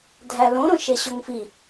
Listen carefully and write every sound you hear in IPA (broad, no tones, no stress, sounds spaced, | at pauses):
dʱ æ l õ ɾ õ ʃ e ɕ o ŋ f i